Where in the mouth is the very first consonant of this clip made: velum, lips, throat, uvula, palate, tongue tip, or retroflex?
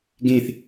velum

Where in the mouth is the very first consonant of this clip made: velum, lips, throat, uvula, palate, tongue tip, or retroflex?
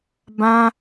lips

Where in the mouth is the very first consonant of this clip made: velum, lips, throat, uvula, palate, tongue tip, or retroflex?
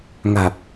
velum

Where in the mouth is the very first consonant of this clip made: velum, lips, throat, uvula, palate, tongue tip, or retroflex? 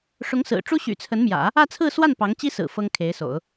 retroflex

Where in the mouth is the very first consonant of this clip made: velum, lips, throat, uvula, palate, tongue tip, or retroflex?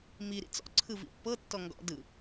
lips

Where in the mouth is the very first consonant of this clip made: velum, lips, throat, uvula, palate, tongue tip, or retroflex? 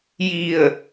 palate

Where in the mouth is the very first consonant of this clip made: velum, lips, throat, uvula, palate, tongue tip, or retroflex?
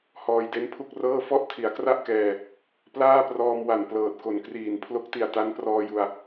throat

